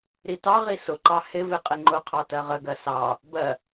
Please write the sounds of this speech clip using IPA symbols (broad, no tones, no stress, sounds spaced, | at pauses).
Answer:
ɾ i t ɑ ʁ i s ʊ ǃ ɑ h ɪ v ɪ qʼ ɪ ŋ͡ǃ ʊ qʰ ɑ t ɜ ʁ ə ɡ ɜ s ɑ | b ɜ